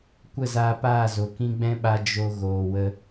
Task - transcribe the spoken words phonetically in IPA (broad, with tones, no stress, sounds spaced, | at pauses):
kʷ ə˦˨ z aː˧ p aː˦˨ z o˨ k ĩ˧ ɡ͡b ɛ̃˦ ɓ a˧ d͡ʒ o˧ ɣ oː˨ w ə˧